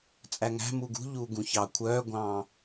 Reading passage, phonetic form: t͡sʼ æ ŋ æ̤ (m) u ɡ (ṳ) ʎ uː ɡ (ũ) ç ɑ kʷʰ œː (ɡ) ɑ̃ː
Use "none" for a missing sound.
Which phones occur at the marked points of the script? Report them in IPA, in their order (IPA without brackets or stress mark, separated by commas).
m, ṳ, ũ, ɡʷ